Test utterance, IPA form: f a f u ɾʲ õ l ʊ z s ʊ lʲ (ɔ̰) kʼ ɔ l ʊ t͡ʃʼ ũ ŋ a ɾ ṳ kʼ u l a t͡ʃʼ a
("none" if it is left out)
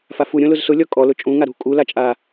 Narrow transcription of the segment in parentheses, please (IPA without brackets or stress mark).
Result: ɔ